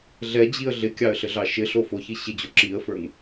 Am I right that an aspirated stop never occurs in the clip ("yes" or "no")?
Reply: yes